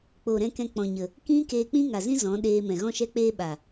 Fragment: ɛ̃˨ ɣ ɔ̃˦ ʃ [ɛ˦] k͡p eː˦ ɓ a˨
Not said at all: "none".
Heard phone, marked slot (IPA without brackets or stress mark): ɛ˦